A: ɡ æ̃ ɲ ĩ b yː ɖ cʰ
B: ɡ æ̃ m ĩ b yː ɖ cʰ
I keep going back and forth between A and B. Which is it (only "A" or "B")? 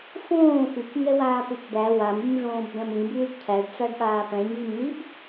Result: B